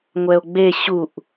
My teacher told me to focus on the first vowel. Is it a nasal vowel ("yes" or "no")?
no